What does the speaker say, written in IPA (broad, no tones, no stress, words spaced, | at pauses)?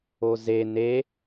oze ne